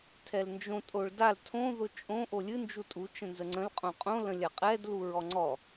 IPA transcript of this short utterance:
tʰɛlnd͡ʒõ tʼoɭdal tʰõ ðʊt͡ʃʼõ ʔolʲɨ nd͡ʒutʼu t͡ʃə̃nzəŋ͡ǀə̃l qʼõqʼõ lə̃lʲaqʼɛd luɹɔŋ͡ǀɔ

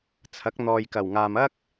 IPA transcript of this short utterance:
t͡sʰɐ˨˥k̚n̪ɔː˨jkɐ˨˩wŋaː˨m ɐ˥k̚

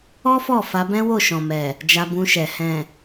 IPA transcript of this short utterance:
ɔ˦fɔ˦˨ fa˧bɛ̃˦ wo˦˨ʃɔ̃˨mɛ˨ | d͡ʒa˧bũ˧ʃɛ˨ hɛ̃˨

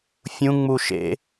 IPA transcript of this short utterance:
fʲũ ŋ͡muʃḛ

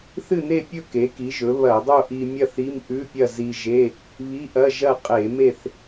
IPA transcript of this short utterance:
θɨ˥˨ne˥˨pʲɵ˥˨ ke˩˥ki˩˥ʒɵ˩˥ βɐ˧˩˧dˤo˥˨ʔi˧mʲɐ˥˨θ i˧˥˧m ʔʉ˧˥˧pʲɐ˥˨ zi˧ʒe˧˥˧ | βi˧˥˧ʔɐ˧˥˧ ʒɐ˥˨ qʼe˧˩˧me˥˨θ

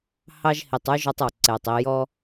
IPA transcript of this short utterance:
hɑ˥ʒhi˨tˤʉ˥ ʒɔ˦tˤɔ˩ǀɛ˩tˤ i˨jɔ˦

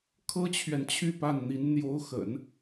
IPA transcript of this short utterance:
kʰɤ˥t͡ɕʰɥɛ˨nt͡ɕʰy˥˧ pa˥˩nn̪i˧˥n n̪jo˧˥ʊ̯xə̰˨˩˦n

